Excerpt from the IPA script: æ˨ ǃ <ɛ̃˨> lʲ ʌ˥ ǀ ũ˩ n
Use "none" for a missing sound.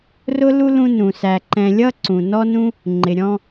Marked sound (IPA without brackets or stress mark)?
ɛ̃˨